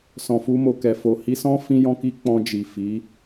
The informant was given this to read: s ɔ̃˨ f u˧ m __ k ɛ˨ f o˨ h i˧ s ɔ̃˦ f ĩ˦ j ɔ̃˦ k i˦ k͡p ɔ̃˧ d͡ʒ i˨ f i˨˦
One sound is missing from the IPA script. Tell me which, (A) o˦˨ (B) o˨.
B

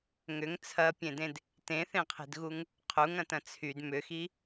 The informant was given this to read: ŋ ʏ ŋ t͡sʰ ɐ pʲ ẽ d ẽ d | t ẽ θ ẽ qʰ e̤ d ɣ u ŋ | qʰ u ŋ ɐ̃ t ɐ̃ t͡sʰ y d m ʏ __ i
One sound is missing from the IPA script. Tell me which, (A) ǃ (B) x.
B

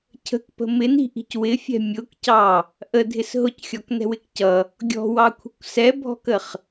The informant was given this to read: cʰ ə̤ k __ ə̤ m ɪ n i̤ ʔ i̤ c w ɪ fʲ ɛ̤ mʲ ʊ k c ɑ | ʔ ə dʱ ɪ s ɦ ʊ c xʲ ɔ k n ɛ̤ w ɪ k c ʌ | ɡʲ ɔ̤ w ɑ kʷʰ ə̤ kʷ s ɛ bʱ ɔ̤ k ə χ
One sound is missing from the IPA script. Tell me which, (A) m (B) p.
B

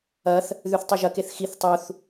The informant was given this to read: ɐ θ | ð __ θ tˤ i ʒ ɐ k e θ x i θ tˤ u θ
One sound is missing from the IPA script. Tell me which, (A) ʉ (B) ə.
A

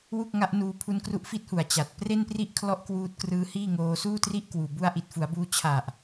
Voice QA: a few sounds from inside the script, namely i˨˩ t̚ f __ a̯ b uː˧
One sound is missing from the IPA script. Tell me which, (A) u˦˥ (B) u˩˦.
B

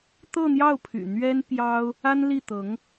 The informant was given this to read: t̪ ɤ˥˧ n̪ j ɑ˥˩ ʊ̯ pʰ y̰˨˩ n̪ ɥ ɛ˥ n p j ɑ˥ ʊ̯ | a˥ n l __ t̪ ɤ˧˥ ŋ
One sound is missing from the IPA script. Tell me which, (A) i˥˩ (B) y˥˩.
A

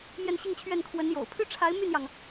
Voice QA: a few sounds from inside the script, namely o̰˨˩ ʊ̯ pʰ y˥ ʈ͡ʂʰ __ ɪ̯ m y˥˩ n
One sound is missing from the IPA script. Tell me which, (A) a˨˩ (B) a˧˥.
B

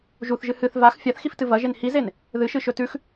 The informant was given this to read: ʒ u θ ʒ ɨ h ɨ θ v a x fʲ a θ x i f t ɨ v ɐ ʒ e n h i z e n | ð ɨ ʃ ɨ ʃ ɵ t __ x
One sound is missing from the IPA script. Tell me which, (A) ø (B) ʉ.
B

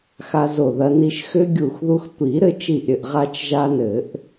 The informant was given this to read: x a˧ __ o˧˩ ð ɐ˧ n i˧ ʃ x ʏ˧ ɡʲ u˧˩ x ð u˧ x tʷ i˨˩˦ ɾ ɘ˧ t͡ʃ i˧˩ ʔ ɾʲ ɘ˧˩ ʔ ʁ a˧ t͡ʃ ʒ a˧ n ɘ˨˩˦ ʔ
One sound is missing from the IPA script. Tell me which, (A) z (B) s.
A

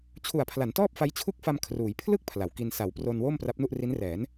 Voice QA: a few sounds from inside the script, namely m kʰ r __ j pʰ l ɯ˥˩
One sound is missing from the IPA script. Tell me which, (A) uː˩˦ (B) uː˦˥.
A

